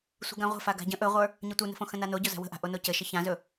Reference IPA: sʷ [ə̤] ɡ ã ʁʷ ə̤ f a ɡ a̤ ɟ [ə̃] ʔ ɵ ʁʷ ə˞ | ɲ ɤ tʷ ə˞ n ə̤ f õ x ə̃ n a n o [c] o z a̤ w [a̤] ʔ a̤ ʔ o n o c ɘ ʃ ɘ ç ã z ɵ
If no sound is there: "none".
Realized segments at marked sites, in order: ə̤, ə̃, ɟ, ə̤

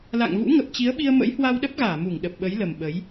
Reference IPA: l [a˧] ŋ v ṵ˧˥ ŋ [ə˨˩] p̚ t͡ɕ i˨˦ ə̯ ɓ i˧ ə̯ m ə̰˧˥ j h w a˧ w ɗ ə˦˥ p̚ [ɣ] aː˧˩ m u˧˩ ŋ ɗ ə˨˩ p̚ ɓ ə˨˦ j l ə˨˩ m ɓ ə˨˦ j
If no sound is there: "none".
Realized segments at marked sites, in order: a̰˧˨, ə˨˩, ɣ

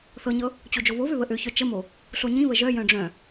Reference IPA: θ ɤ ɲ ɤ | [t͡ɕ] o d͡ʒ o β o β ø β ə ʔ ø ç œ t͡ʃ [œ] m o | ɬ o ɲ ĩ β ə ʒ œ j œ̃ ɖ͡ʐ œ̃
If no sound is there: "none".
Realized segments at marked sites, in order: t͡ɕ, ə

